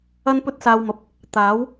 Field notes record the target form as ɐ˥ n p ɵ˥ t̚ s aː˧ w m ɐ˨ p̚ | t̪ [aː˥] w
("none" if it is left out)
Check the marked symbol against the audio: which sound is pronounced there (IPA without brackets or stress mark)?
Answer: aː˨˥